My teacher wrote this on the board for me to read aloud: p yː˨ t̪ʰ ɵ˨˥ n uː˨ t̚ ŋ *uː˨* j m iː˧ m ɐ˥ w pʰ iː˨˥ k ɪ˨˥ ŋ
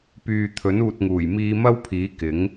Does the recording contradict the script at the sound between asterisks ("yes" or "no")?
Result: yes